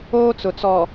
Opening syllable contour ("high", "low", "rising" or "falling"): high